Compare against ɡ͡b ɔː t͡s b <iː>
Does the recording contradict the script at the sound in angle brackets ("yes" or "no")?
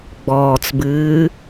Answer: yes